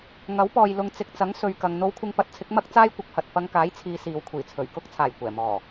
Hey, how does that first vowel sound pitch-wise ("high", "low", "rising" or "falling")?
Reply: rising